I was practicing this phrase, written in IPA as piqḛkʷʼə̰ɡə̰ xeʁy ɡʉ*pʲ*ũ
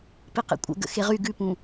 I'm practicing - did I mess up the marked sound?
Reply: yes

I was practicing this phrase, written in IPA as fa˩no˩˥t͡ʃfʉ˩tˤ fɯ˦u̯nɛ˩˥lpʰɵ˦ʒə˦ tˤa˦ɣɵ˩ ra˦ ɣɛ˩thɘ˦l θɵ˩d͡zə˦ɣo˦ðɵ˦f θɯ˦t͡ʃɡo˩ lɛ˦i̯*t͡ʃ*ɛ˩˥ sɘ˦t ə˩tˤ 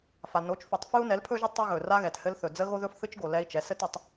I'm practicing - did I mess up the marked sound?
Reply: no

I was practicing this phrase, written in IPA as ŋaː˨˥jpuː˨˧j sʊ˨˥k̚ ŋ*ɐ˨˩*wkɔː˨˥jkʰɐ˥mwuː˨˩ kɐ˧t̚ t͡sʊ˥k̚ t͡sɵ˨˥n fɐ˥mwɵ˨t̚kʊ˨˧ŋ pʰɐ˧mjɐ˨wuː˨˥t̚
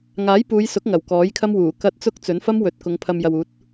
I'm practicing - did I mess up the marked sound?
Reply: no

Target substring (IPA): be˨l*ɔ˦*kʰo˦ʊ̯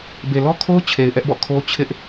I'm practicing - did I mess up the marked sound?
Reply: no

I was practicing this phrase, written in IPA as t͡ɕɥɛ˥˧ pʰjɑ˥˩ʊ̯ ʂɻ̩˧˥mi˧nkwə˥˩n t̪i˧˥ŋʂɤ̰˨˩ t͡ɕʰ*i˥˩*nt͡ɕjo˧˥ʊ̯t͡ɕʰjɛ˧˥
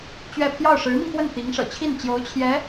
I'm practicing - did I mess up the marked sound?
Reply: no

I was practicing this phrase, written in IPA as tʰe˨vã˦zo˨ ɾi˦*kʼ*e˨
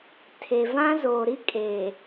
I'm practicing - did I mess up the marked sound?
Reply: no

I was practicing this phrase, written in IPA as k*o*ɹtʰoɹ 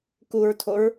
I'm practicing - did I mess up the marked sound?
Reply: yes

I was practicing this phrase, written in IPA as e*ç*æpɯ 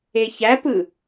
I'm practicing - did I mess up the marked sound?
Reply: no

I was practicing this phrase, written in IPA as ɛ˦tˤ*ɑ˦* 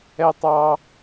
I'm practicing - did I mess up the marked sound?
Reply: no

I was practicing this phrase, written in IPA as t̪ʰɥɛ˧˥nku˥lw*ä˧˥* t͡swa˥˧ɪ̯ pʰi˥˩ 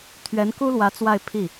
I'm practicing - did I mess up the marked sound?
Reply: no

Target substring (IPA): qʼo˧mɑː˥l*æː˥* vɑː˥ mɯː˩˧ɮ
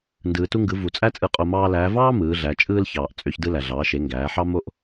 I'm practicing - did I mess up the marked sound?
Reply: yes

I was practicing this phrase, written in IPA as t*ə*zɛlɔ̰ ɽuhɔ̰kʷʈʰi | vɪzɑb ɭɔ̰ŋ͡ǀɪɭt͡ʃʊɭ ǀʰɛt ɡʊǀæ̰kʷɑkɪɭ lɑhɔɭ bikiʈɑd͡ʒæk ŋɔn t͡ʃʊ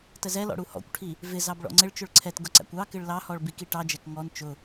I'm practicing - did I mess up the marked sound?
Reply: no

